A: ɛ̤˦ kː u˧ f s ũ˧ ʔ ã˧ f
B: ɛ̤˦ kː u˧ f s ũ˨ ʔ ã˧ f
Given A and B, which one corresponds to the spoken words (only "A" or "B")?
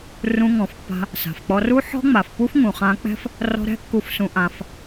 A